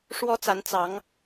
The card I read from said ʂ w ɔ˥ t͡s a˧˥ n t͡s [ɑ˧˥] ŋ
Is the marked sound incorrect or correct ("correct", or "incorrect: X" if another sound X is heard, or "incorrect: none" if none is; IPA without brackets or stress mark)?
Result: correct